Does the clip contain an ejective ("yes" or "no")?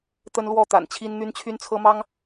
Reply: no